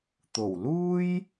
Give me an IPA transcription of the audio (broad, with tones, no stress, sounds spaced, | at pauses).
t̪ o˨˩ w l uː˥ j